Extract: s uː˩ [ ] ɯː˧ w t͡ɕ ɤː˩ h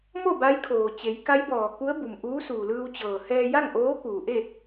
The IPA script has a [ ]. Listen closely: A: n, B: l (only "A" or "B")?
B